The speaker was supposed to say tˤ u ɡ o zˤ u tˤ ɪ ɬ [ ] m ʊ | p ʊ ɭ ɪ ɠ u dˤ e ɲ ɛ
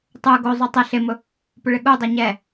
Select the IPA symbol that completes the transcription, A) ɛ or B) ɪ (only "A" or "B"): B